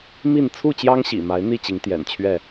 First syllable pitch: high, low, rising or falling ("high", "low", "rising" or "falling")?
falling